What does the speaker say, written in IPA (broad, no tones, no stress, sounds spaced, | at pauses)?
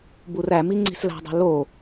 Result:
b u r æ m i ŋ͡ǀ i̤ s l æ̤ dˤ e̤ l o